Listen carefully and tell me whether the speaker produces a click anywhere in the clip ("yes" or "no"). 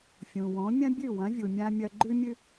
yes